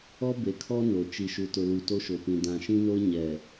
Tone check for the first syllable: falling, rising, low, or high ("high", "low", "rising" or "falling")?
high